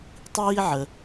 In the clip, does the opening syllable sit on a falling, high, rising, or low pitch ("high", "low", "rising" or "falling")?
high